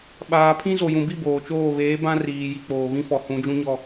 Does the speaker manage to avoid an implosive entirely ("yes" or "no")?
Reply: no